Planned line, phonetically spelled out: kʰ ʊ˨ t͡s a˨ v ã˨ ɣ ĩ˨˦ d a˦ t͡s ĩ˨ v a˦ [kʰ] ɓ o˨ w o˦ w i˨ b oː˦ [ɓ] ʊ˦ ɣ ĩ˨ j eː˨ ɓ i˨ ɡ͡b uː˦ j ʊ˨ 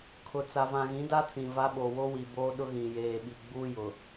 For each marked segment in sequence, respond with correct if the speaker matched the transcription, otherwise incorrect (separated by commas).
incorrect, incorrect